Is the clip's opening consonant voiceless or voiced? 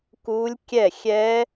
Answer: voiceless